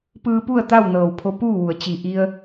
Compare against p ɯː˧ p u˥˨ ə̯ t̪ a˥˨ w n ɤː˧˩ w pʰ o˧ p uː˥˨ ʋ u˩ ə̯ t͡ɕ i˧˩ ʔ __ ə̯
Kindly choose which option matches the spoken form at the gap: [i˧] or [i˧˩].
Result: i˧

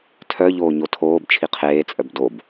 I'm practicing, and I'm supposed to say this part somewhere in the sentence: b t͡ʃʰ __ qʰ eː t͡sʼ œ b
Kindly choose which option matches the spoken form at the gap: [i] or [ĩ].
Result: i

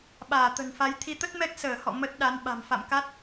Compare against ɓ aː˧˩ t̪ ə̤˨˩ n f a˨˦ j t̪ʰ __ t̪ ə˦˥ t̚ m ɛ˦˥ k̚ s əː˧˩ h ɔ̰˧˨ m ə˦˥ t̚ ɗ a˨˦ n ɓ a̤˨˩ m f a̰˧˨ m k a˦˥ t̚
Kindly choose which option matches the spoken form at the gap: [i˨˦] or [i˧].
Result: i˨˦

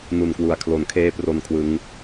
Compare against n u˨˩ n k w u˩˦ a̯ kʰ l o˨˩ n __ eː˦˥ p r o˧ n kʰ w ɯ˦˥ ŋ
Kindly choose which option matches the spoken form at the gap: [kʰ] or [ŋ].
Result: kʰ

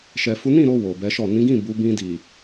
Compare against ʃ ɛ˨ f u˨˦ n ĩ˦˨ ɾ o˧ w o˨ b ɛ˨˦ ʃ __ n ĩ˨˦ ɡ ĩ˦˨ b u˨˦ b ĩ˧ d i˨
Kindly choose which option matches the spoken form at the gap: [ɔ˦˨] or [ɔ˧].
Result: ɔ˦˨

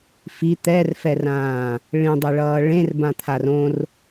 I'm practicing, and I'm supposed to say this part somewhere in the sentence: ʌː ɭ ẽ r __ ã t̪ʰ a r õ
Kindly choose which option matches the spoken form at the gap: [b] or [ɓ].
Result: b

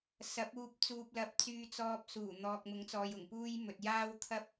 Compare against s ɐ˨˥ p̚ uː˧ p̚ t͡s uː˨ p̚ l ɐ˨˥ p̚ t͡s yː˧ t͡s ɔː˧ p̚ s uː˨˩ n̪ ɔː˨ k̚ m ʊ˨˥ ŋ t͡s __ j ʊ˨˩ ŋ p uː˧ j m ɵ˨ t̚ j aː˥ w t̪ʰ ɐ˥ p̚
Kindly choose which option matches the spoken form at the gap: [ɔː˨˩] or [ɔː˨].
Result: ɔː˨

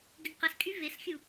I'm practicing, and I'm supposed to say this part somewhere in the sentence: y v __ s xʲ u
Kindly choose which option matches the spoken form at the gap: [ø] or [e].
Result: e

